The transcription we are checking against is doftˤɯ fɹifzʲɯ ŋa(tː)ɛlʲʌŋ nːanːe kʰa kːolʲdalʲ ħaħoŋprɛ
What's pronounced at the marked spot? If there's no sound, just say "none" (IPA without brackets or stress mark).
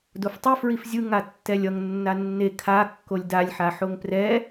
tː